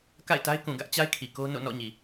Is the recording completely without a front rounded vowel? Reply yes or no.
yes